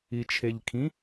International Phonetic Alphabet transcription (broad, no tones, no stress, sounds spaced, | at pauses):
i t͡ʃʰ e ʎ kʰ ĩ